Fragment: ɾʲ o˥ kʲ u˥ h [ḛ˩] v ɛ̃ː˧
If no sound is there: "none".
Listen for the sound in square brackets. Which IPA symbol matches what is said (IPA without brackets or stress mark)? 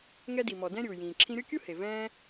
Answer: e˩